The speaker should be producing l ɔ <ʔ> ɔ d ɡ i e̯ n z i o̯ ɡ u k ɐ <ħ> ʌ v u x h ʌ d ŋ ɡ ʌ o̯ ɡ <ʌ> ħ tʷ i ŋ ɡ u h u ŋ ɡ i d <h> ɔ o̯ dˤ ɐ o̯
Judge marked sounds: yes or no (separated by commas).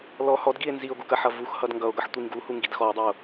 no, yes, yes, no